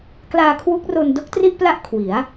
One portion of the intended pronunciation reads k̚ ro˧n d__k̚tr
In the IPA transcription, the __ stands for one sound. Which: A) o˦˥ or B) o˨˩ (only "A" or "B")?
A